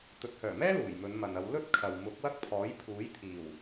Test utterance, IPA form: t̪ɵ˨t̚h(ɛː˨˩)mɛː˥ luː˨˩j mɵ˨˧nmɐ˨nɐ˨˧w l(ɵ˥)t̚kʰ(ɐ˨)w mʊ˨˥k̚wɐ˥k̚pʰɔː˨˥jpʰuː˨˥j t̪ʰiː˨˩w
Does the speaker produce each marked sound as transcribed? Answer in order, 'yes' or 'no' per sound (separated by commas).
no, yes, yes